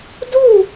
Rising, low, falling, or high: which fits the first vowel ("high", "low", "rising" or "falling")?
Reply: falling